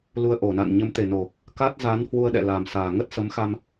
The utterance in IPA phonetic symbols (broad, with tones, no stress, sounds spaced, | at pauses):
l u˧ ə̯ ʔ o˧˩ n a̰˧˨ n ɲ ə˨˦ m t̪ e˨˩ n o˨˩ | k a˦˥ t̚ z a˨˦ n h w u˧ ə̯ ɗ ɛ̰˧˨ l a˨˩ m s aː˨˩ ŋ ə˦˥ t̚ s ə˨˦ m x a˧ m